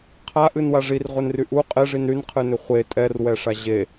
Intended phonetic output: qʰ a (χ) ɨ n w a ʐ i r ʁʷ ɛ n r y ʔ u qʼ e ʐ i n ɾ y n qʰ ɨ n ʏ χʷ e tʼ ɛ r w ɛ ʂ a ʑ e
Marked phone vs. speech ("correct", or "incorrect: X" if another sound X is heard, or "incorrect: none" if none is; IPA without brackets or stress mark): incorrect: ʔ